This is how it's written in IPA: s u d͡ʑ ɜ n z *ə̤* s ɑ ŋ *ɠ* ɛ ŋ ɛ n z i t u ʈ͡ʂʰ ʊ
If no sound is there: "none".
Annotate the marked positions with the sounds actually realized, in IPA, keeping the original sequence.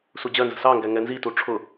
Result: ə̤, ɡ

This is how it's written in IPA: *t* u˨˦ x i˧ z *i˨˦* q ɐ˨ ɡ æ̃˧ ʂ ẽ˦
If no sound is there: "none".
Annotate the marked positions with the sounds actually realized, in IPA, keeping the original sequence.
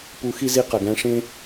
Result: p, i˧

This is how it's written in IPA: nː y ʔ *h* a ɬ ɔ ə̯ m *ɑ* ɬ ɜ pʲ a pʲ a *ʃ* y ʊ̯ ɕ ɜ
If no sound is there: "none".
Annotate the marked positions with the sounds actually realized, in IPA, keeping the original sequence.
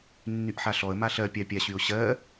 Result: ħ, a, ɕ

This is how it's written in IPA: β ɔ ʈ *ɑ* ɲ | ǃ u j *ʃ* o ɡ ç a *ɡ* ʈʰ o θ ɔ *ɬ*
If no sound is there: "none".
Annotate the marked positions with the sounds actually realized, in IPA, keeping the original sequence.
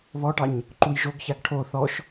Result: ɑ, ʒ, ɡ, ʃ

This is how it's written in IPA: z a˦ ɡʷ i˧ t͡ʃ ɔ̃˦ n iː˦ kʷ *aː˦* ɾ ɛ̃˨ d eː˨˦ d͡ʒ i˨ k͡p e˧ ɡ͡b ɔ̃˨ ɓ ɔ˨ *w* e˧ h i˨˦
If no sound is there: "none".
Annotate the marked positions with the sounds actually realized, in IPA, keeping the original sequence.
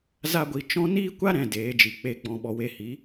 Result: a˦, w

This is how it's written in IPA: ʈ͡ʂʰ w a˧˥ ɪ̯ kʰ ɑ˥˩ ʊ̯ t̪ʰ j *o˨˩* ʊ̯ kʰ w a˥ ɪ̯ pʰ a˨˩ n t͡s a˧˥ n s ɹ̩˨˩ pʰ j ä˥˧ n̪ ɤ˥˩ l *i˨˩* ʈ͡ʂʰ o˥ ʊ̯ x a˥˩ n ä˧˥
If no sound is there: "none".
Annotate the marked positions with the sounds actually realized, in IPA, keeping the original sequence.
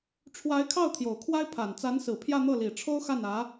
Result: o˨˩, i˨˩

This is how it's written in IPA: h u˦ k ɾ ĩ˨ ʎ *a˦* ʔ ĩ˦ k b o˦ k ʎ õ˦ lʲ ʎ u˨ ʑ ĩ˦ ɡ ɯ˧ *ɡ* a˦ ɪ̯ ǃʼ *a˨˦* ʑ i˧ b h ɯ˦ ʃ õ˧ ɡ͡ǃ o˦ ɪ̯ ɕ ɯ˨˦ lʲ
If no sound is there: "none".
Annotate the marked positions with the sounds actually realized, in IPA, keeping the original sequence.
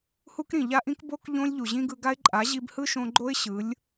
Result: a˦, ɡ, a˨˦

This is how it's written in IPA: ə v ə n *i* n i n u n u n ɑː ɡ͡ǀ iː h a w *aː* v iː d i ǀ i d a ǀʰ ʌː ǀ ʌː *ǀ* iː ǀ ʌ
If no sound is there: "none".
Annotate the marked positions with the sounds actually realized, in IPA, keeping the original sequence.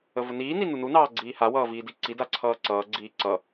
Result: iː, ʌː, ɡ͡ǀ

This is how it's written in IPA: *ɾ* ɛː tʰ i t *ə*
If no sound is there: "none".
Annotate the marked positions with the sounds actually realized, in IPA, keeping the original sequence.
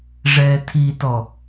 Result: ʐ, ɔ

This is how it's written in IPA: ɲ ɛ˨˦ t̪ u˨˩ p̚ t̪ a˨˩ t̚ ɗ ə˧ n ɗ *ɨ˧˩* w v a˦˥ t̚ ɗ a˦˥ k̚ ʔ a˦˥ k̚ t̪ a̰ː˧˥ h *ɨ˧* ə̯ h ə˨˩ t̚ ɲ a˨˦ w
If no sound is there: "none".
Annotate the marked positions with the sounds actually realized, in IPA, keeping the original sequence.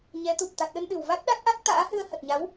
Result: ɨ˧˩, ɨ˧

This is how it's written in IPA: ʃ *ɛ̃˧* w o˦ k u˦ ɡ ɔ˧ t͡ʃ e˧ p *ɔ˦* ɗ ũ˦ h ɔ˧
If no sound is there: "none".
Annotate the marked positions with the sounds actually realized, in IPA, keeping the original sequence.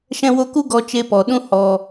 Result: ɛ̃˦, ɔ˨

